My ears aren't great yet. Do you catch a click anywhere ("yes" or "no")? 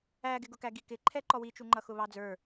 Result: yes